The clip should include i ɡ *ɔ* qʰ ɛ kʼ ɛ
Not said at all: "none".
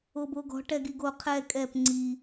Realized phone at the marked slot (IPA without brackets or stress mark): o